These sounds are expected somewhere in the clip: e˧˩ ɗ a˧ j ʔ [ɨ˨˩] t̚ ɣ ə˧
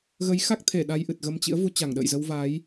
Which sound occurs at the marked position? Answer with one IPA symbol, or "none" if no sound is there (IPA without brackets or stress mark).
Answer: ɨ˨˩